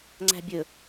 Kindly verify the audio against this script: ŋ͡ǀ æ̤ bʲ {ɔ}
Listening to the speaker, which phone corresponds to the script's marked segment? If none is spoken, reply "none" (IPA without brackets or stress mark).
ɵ